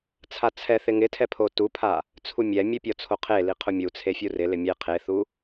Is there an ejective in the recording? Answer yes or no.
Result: no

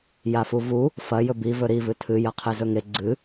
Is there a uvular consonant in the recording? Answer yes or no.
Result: yes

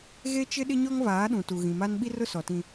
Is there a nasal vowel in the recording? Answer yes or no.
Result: yes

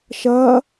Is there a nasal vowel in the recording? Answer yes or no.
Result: no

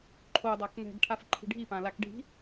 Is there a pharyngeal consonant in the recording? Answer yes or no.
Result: no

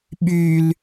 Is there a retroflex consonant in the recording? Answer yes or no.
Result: no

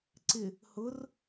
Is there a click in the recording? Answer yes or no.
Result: yes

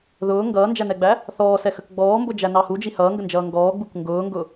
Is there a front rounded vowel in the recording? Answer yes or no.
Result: no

